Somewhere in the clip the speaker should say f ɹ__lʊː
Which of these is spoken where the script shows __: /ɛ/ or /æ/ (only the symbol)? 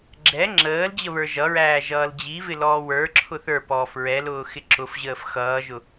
ɛ